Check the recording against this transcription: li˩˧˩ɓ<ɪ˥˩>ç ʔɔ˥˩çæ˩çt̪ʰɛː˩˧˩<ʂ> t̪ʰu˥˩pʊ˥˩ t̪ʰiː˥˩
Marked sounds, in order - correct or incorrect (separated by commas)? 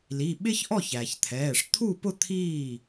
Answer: incorrect, correct